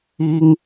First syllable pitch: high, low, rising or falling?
high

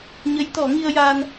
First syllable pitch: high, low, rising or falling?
rising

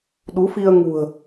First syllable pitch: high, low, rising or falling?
rising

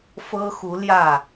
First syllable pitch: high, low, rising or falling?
high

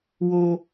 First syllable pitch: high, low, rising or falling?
high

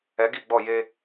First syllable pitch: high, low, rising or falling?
rising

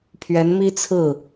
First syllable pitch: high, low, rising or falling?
rising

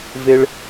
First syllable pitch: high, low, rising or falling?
high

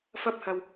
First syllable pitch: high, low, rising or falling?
high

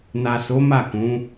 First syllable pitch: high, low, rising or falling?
low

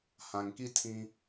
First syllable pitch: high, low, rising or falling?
low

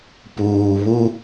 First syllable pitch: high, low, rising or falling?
low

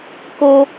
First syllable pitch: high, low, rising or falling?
high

